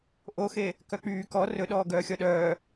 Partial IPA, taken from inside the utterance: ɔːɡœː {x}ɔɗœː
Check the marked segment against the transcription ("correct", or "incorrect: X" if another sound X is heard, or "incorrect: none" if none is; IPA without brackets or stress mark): incorrect: xʲ